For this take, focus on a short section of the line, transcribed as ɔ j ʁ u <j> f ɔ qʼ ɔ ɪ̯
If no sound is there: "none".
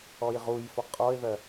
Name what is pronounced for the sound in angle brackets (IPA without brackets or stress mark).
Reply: j